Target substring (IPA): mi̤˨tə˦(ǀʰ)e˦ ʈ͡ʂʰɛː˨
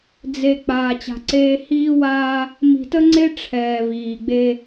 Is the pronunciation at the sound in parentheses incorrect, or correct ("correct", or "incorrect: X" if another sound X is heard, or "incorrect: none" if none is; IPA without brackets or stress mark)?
incorrect: ŋ͡ǀ